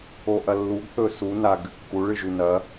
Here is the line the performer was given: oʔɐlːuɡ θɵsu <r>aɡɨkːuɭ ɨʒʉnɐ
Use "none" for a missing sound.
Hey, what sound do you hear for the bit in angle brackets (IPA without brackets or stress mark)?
n